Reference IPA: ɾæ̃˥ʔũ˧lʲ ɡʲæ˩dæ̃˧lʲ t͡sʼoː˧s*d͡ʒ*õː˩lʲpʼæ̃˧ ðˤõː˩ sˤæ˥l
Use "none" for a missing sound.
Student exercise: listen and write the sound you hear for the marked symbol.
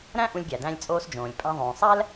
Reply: d͡ʒ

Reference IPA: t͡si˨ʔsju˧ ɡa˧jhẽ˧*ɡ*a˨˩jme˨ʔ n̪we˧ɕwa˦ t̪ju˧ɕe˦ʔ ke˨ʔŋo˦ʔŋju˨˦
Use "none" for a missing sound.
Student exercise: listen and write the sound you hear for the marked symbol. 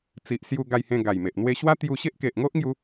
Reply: ɡ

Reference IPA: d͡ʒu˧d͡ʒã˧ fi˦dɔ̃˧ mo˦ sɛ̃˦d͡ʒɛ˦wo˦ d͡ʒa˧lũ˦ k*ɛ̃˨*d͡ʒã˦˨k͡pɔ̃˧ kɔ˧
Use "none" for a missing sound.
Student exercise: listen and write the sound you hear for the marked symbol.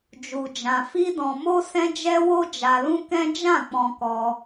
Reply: ɛ̃˦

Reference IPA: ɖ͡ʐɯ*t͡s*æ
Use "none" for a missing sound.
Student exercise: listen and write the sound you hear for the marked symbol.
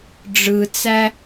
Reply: t͡s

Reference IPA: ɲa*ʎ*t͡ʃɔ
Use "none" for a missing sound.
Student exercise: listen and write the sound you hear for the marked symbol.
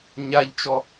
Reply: ʎ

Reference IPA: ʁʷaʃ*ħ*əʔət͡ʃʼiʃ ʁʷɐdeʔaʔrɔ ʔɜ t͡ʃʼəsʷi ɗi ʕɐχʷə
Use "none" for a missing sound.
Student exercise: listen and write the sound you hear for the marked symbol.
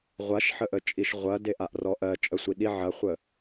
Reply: ħ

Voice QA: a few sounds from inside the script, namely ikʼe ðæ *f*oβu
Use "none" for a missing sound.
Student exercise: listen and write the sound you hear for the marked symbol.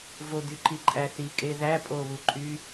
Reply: pʼ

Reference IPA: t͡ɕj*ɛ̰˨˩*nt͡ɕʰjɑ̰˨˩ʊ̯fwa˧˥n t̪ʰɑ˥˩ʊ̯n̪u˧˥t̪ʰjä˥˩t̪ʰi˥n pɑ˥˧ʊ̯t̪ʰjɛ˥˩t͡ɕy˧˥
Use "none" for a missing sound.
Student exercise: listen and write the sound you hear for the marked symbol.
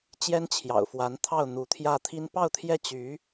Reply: ɛ˥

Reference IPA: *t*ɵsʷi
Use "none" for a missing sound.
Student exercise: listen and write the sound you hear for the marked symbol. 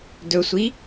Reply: d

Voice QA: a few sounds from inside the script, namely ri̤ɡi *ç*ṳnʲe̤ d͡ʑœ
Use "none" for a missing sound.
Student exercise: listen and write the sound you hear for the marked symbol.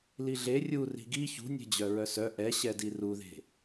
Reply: ç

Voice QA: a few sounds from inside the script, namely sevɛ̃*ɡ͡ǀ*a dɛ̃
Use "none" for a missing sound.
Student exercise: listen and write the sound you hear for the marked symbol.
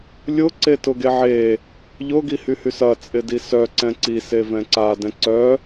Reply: ǀ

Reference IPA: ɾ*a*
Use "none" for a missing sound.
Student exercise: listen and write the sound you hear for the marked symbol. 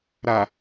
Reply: a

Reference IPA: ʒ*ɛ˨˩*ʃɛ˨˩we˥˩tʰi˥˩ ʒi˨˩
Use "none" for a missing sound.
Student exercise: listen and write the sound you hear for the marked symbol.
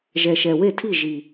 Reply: ɛ˨˩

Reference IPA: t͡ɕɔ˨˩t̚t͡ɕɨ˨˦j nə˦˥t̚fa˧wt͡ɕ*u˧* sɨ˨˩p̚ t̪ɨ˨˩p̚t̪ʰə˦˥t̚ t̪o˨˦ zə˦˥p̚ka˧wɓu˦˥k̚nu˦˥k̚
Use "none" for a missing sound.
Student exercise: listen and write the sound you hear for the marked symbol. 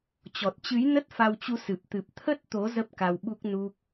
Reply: u˧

